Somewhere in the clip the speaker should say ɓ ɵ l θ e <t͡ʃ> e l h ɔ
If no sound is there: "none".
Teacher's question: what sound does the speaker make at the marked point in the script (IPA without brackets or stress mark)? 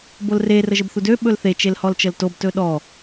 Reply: t͡ʃ